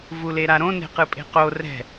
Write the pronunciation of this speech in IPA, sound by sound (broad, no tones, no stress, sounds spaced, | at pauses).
v u l e ɾ a ɾ õ n e̤ q ɯ pʼ e̤ q o r ɛ̤